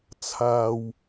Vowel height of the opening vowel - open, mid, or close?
open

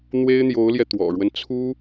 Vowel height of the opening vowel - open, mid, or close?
mid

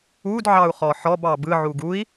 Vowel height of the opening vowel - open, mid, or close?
close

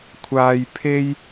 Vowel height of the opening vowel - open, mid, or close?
open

